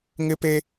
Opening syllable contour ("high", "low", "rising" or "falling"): high